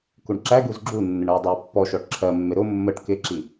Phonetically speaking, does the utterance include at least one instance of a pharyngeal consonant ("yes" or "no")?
no